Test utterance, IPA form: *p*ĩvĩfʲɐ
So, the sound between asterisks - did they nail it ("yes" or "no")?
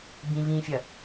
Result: no